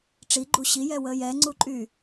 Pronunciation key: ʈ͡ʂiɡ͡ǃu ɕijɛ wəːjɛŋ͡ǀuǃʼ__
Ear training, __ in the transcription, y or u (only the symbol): y